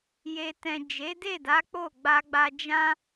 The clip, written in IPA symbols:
j e˨ t ɛ̃˨ d͡ʒ e˨˦ d e˦˨ d a˨˦ k͡p o˦˨ ɡ͡b a˧ ɡ͡b a˧ d͡ʒ ã˦

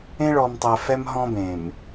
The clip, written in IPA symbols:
ẽ˦ ɭ ɔ˨ m tˤ ɛ˨ f ɛ˦ m ɦ ɔ̃˦ b ẽ˨ m

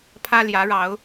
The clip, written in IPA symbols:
pʰ ä˦ l j ä˨˦ ɻ ɑ˨˦ ʊ̯

